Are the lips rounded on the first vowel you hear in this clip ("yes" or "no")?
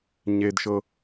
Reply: no